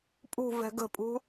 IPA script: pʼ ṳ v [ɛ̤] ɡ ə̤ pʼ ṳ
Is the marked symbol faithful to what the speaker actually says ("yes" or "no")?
yes